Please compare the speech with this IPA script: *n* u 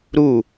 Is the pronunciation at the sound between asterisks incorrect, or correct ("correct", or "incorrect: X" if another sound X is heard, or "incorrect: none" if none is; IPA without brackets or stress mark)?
incorrect: ɾ